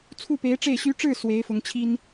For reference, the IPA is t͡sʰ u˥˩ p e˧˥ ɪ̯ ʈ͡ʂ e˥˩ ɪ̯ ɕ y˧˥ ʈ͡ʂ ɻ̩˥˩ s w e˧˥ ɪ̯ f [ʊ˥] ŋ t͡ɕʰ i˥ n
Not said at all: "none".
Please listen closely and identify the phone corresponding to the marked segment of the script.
ʊ˧˥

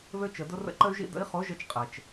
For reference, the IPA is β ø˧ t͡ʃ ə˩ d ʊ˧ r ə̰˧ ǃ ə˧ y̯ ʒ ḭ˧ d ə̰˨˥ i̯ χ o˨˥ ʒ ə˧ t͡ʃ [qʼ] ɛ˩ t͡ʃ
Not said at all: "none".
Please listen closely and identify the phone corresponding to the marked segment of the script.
qʼ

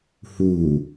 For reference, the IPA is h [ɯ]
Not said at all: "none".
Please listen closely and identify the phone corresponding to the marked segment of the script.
u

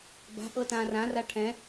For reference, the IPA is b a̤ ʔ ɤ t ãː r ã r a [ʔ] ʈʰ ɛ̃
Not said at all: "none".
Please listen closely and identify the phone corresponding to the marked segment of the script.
none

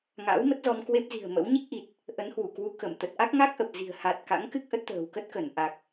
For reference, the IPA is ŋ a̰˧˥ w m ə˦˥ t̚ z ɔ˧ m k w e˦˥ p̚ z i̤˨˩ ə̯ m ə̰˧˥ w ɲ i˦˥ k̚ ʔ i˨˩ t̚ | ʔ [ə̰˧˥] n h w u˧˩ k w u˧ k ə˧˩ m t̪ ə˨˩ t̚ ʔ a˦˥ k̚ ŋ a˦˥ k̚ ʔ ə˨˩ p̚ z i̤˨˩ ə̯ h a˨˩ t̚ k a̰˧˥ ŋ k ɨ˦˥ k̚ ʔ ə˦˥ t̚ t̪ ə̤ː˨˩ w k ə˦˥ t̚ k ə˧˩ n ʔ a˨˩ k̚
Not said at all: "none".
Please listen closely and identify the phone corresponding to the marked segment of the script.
ə˨˦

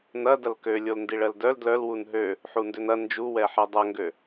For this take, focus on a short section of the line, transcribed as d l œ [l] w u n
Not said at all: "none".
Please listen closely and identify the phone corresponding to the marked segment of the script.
l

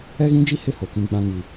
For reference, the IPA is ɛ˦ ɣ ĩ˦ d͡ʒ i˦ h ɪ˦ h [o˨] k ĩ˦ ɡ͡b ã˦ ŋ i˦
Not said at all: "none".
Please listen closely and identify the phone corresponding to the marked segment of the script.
o˨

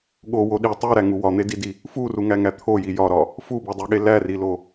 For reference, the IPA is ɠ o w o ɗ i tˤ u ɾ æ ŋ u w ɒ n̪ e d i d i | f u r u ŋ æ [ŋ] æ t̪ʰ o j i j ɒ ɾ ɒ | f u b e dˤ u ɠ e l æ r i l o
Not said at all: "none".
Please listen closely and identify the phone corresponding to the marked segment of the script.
ŋ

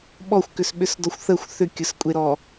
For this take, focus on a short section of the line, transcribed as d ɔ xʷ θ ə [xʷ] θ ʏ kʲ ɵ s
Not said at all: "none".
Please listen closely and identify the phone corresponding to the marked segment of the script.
xʷ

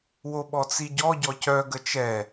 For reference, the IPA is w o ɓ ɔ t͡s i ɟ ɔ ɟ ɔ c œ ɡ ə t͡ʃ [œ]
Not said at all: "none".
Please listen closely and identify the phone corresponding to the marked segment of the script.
ɛ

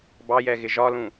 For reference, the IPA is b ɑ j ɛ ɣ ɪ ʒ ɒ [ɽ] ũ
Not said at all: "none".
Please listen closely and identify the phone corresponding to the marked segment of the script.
l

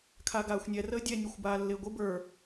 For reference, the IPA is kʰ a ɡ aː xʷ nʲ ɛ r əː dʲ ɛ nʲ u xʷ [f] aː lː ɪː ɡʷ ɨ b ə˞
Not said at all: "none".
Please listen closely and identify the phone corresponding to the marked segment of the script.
b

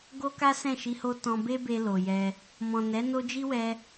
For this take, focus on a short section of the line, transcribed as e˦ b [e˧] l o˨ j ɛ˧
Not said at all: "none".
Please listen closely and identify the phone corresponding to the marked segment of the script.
e˧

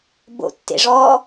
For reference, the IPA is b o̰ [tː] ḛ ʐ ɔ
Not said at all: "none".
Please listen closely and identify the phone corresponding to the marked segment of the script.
tː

